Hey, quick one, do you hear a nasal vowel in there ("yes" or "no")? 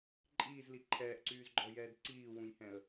yes